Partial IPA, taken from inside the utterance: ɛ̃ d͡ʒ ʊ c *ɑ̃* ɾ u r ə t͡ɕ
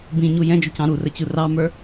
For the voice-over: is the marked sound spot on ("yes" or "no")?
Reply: yes